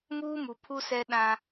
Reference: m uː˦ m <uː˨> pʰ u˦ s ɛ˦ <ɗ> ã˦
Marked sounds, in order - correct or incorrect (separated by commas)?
incorrect, correct